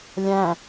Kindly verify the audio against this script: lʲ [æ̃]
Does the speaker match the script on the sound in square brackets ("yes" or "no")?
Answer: yes